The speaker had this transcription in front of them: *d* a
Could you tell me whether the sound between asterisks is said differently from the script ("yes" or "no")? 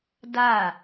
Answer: no